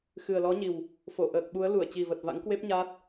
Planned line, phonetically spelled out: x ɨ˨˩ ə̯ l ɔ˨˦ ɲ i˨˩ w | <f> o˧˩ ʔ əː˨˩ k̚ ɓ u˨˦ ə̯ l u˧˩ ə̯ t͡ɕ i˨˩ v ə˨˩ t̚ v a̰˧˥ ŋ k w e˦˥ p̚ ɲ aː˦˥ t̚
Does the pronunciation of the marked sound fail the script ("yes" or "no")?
no